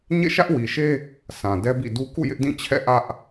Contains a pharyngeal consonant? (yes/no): no